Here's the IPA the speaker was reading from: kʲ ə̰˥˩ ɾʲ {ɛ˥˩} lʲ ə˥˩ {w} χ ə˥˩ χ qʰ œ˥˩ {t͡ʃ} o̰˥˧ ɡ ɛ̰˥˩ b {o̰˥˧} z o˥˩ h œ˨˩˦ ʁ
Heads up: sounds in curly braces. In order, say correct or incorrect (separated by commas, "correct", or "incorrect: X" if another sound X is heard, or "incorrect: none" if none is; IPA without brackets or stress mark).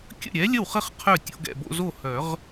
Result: incorrect: ɛ˨˥, correct, incorrect: tʲ, correct